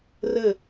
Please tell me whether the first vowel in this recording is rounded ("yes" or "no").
no